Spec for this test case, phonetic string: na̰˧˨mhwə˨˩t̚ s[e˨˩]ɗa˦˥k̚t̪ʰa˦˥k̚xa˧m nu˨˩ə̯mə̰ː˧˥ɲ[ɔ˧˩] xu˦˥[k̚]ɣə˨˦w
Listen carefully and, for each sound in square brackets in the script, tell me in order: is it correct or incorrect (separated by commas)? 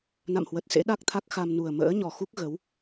incorrect, incorrect, correct